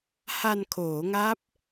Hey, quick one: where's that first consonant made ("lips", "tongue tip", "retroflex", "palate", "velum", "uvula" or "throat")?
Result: throat